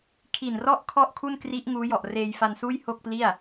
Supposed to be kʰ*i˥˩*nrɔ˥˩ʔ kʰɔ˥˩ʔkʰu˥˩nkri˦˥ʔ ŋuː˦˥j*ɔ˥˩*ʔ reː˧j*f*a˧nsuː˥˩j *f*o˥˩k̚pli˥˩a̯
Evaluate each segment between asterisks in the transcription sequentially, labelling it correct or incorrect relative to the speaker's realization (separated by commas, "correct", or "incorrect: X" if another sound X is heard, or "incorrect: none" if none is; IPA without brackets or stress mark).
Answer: incorrect: i˨˩, incorrect: ɔ˨˩, correct, incorrect: h